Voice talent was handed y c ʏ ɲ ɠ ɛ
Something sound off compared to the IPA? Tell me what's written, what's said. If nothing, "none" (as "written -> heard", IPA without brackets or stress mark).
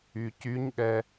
ʏ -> y